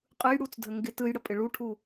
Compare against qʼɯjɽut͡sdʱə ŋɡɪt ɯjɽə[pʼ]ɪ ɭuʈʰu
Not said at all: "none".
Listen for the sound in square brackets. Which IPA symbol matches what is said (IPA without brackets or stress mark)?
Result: pʼ